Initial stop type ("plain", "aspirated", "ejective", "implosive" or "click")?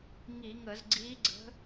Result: click